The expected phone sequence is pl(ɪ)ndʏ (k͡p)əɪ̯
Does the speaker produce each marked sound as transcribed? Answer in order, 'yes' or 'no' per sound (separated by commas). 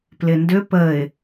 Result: yes, no